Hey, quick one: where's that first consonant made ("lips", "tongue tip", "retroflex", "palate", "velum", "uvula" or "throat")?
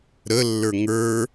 tongue tip